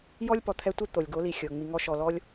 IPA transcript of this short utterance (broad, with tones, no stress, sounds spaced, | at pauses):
j ɔ˦ lʲ p ɔ˨ t̪ʰ ɛ˧ tʷ e˦ t̪ o˨ lʲ ɡ o˨˦ l i˨ xʲ ɤ˨ ŋ͡m i˧ ŋ ɔ˦ ʃ ɔ˧ l ɔ˦ lʲ